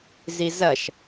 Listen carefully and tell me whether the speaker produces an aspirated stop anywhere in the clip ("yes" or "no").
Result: no